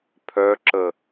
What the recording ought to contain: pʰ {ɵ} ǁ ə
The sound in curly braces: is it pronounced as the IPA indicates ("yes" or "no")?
no